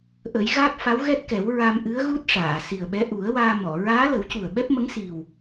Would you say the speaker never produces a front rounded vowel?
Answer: yes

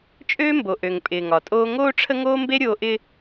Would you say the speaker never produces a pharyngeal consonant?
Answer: yes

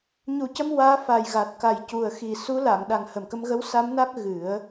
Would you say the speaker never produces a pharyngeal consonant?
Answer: yes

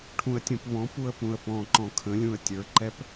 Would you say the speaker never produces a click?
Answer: no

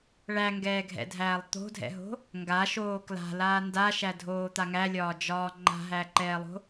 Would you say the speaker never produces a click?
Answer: no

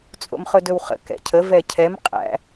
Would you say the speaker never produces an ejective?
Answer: no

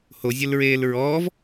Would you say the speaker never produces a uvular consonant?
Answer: yes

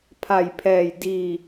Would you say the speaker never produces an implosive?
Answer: yes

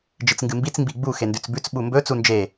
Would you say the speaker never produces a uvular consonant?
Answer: yes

